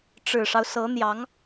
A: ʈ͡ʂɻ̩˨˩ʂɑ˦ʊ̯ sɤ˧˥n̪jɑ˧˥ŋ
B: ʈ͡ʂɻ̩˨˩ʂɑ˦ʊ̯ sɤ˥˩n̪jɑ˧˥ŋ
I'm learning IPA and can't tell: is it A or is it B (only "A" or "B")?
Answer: A